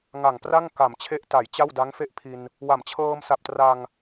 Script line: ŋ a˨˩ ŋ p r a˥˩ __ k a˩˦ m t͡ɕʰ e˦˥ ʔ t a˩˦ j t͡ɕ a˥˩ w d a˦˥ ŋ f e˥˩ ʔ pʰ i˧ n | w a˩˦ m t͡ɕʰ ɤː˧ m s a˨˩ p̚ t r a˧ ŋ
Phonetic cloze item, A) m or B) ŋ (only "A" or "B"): B